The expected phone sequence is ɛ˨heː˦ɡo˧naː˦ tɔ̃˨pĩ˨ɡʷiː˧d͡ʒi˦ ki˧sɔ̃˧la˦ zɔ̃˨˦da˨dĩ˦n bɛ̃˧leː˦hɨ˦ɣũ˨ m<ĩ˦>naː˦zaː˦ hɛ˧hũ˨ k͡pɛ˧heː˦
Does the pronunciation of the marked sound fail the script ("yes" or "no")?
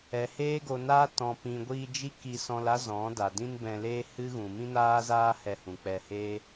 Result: no